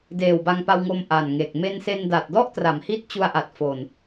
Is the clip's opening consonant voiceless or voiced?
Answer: voiced